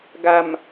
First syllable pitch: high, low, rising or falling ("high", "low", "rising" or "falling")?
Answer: low